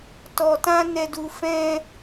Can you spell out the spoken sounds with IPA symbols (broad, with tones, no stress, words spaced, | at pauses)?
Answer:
tɔ˨tã˧ nɛ˨du˨ fɛ̃˧